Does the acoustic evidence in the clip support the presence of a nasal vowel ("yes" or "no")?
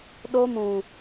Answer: yes